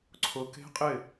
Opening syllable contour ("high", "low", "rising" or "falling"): low